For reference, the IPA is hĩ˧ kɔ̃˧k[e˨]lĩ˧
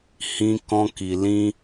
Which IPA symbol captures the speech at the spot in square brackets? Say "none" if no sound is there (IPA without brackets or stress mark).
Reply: i˨